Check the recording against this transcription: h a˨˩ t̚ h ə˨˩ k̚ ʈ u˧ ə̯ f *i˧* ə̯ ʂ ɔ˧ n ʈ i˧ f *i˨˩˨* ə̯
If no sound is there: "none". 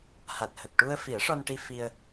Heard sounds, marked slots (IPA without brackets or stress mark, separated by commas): i˨˩˦, i˧